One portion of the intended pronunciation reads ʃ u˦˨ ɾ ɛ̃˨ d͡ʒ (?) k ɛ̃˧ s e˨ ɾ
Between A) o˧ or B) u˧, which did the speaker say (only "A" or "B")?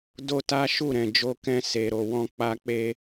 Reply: A